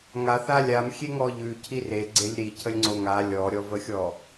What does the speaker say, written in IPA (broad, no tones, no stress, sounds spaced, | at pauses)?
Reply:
ŋ a θ a lʲ a m xʲ e ŋ ɔ ʎ ʉ cʰ i r e ɡ͡ǀ e lʲ ɾ i cʰ ə lʲ ŋ͡ǀ o ŋ a lʲ ɔ ɾʲ ɔ v ə xʲ ɔ